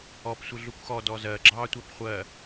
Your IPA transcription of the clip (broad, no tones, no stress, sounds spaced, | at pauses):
ɔ p sʷ ɪ ɮ u kʷ x ɔ d ɔ z ɜ ɡ͡ǁ ɑ tʷ æ p χʷ ɜ